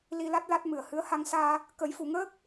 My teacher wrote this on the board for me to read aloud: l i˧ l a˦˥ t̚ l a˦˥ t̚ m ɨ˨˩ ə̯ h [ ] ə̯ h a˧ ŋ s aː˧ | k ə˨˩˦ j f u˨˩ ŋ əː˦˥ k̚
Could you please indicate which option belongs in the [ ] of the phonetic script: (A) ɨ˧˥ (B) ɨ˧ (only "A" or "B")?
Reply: A